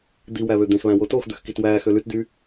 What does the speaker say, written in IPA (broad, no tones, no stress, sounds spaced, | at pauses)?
d̪ i w æ β ø d̪ ẽ x β æ̃ w o t o x d̪ ø x k i t w æː x ø l y t d y